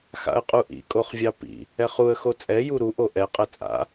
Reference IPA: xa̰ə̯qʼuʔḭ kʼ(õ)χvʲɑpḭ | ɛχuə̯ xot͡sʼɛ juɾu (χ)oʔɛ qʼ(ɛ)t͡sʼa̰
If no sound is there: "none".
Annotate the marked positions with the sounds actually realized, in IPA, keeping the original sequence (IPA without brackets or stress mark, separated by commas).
o, ʔ, ɛ